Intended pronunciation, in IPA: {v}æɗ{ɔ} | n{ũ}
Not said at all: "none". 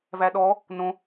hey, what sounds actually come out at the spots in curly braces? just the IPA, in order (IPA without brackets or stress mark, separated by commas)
v, ɔ, õ